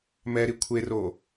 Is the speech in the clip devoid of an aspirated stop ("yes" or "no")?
no